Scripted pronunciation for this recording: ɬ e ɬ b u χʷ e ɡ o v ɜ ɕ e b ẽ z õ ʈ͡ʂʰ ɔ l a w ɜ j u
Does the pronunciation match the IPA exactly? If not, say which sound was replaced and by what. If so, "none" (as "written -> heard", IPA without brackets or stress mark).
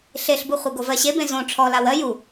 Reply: none